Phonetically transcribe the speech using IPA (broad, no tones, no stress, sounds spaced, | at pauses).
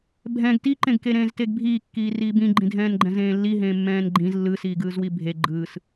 bʱ ɛ̃ ɡ t i ǃ ẽ ɡ k e ɾ ẽː z t e ɡ bʱ iː kː iː r iː b ĩ ɡ͡ǃ ĩ dʱ ɛ̃ː n ɡ͡ǃ ɛ̃ z ẽː lː i ɦ ẽː mː ɛ̃ː n ɡ͡ǃ ĩ z lː ɯ s iː ɡ ɯː z w i bʱ e ɡ͡ǃ ɯː s